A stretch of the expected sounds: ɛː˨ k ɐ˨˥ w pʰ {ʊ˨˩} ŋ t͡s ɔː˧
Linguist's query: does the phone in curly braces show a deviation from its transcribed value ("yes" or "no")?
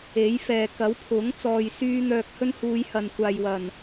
yes